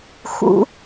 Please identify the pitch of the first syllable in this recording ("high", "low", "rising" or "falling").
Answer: rising